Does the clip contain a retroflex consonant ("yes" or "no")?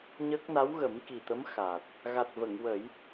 no